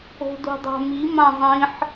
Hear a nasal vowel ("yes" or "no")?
yes